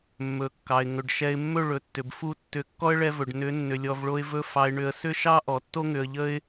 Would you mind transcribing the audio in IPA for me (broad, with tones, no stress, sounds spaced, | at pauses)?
mː ɵ˨ kː ɑ˨ ɪ̯ ŋ ɵ˨ ɖ ʃ ɛ˧ ɪ̯ mː ɵ˦˨ ɭ ɵ˨ tː ʏ˨ b f u˦ tː ʏ˨˦ kː ɔ˦ ə̯ ɭ ɛ˧ v ɵ˨ ɖ n ʏ˨˦ nː ʏ˧ lʲ ɔ˧ v ɭ o˦ ɪ̯ v ɵ˦ f ɑ˧ ɪ̯ ɳ ʏ˧ ə̯ s ʏ˦ ʃ ɑ˦ ʔ ɔ˨ tː o˦ ŋ ʏ˧ ə̯ ʎ ə˦ ɪ̯